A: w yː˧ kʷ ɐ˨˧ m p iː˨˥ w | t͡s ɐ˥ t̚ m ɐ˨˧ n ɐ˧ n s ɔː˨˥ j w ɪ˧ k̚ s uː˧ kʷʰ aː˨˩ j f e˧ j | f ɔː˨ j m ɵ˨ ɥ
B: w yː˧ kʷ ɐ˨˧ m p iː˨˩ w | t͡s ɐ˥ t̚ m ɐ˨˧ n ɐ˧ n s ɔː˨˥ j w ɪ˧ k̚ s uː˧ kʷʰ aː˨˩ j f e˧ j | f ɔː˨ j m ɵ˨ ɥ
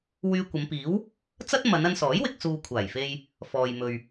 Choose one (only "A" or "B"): A